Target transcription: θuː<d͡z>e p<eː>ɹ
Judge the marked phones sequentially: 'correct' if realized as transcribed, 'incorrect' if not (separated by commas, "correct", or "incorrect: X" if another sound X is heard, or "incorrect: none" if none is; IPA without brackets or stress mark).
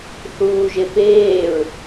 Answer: incorrect: ʒ, correct